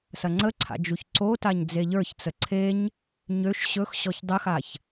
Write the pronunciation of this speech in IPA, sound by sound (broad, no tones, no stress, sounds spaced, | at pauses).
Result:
s ɐ ŋ͡ǀ ə ǀʰ a̰ d͡ʒ u ç ǀ o t a ɲ d͡z e ʎ ə˞ ç t͡s ə ǀʰ e ɲ | ɲ ø ʃ ɕ ɵ x ɕ ɔ ç dˤ ə x a ç